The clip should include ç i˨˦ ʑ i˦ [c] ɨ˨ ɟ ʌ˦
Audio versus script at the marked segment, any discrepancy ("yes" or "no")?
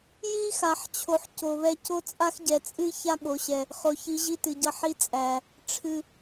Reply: yes